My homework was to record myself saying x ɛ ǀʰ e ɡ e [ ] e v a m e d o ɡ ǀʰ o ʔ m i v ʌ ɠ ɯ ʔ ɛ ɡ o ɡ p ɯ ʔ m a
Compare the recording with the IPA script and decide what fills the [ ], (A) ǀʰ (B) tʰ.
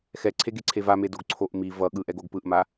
A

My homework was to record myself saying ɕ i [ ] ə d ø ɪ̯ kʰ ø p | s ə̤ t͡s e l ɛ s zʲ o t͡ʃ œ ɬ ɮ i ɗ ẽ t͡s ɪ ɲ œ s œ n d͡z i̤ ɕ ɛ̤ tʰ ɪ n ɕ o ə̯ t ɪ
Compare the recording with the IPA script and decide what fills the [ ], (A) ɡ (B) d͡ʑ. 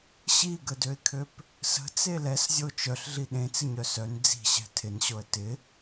A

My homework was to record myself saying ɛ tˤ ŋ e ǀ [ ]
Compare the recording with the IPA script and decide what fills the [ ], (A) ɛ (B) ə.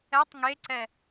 A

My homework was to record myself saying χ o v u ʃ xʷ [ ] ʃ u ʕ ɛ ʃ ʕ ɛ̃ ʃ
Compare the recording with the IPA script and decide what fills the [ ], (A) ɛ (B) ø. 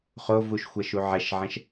A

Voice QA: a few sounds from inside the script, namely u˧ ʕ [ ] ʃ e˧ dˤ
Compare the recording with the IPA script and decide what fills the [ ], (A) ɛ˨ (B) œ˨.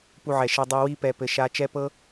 A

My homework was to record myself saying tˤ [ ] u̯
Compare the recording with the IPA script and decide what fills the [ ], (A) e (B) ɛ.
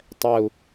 B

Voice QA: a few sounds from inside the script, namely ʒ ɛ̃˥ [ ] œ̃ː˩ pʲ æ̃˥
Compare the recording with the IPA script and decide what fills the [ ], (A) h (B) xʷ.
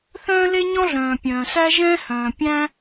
A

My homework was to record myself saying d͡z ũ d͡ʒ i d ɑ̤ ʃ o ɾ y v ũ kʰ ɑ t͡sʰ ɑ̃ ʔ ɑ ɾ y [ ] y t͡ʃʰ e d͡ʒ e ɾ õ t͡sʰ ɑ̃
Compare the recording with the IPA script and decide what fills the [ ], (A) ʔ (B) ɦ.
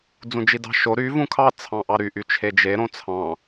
A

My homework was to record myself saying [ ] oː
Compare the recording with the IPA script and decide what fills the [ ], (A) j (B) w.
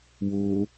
B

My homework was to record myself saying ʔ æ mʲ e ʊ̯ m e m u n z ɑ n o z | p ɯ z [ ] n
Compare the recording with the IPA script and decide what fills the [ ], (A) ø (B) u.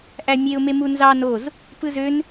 A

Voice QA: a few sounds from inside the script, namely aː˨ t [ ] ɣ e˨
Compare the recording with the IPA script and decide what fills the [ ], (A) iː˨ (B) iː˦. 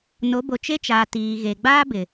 A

